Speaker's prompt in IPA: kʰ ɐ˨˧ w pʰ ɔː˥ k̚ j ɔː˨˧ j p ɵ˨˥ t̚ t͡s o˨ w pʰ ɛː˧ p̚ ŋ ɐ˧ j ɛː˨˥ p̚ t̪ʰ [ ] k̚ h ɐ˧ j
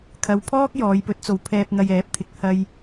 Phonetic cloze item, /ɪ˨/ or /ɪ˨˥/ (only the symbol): ɪ˨